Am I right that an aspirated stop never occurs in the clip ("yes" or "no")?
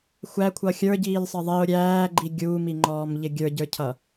no